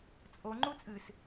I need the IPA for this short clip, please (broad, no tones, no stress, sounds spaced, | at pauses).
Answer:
t͡sʼ o ŋ͡ǃ u t͡sʼ ɨ s